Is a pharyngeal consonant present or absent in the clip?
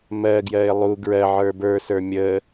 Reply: present